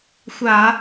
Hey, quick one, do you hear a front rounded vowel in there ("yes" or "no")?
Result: no